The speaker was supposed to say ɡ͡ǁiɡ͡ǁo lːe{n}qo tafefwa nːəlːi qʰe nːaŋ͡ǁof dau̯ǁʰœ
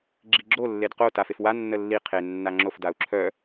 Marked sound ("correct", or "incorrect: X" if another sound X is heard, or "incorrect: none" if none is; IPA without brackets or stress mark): incorrect: d